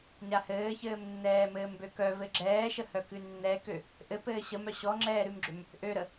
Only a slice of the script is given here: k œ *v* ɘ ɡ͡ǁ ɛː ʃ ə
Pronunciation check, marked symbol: correct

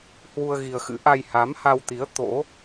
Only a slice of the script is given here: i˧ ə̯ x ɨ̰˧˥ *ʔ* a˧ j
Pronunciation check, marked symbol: correct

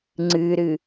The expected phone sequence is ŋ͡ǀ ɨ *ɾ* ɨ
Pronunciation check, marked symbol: correct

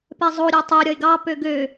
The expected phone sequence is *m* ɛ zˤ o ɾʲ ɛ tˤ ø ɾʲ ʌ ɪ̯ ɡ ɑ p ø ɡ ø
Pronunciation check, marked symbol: incorrect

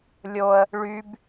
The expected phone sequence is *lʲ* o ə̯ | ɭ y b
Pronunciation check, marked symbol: correct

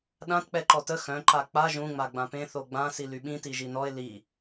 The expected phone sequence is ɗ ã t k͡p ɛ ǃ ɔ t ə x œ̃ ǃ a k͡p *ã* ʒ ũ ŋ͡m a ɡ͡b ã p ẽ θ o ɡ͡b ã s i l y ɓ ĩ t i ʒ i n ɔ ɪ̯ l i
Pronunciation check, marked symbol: incorrect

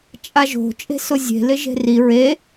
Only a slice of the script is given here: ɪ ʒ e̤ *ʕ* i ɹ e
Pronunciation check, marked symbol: incorrect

